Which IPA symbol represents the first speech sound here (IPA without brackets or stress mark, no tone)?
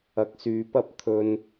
ɐ